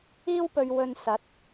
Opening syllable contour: high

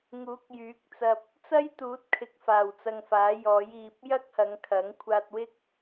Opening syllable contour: rising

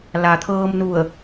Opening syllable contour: low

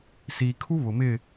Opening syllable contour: low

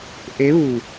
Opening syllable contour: rising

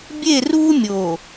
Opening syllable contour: falling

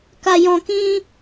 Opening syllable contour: low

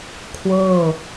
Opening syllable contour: falling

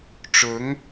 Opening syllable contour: rising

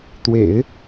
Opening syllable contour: low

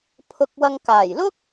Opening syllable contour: low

